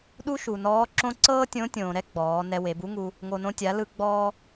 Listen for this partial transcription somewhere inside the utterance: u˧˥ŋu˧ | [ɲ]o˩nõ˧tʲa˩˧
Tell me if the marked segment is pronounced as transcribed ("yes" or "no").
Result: no